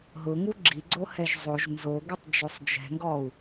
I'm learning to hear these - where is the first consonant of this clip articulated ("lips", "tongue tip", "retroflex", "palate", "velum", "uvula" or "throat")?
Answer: throat